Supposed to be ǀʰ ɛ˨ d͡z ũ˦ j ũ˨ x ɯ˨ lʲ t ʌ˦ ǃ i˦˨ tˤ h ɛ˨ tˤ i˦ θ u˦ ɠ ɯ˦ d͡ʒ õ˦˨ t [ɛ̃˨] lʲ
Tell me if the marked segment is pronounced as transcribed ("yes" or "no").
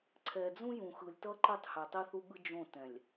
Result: yes